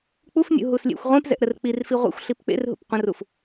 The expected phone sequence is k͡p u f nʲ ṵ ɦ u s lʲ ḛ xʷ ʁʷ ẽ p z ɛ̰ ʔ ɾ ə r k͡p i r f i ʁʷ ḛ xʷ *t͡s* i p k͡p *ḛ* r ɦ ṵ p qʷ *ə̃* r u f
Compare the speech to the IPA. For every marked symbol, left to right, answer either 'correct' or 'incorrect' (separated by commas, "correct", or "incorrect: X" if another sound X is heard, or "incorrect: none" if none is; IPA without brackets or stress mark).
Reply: incorrect: ɬ, correct, correct